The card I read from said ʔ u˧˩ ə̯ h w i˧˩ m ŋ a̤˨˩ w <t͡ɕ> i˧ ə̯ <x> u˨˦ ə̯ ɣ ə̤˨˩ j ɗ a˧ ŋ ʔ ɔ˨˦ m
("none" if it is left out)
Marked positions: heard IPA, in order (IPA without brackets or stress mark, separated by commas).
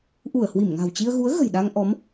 t͡ɕ, ɣ